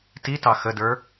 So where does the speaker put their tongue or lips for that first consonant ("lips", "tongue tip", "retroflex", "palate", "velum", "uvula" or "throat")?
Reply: tongue tip